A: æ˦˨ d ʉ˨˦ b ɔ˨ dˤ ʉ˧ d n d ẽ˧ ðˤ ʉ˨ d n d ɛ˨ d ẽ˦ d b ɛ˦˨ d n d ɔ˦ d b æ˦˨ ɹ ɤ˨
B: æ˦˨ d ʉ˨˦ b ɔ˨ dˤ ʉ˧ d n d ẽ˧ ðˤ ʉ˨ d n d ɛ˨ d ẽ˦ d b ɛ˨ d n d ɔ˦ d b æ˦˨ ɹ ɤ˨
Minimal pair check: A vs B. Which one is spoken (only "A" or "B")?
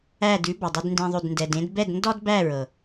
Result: A